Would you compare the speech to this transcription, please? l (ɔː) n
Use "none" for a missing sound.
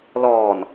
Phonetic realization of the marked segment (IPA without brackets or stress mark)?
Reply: ɔː